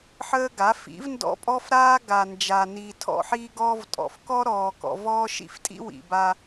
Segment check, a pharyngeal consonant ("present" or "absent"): present